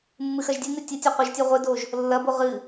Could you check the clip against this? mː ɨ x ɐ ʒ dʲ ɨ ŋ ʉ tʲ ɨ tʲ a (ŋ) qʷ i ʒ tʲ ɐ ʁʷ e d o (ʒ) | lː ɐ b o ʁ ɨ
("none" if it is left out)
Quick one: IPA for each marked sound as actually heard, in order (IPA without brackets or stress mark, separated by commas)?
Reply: none, ʒ